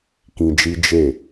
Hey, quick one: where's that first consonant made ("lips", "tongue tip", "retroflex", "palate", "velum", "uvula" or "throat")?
velum